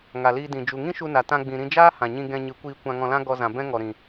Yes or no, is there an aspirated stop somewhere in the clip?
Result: no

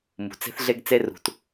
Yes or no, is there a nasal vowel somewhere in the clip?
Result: no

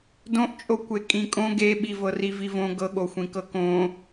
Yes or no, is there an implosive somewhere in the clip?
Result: yes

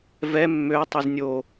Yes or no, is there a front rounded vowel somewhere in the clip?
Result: yes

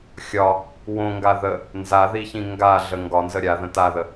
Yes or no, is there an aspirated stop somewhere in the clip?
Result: no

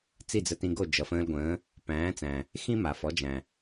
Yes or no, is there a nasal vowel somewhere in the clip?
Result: yes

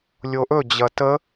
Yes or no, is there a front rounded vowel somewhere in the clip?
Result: no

